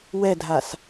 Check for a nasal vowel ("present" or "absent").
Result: absent